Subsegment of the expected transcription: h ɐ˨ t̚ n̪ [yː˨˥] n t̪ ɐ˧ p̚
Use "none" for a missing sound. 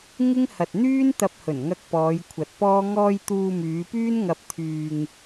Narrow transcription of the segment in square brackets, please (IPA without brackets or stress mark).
yː˥